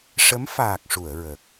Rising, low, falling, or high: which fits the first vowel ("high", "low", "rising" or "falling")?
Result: rising